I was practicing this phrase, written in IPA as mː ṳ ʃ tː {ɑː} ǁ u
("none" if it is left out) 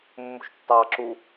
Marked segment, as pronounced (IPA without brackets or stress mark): ɑː